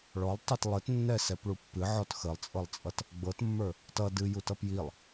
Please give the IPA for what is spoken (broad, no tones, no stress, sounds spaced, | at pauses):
ɭ ɔ lˠ tˤ i t lˠ ə t nː ɛ s ɛ p ɭ u pː ɨ ʕ ɔ t x ə lˠ t͡sʼ ɤ lˠ t͡sʼ ʌ t | ɡ͡b ɤ t mː ə˞ | t ʌ d ɨ j u t ʌ p j i lˠ